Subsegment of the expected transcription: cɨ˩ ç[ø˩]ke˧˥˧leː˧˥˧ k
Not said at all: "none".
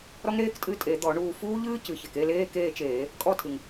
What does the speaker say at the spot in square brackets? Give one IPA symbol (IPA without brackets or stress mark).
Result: e˩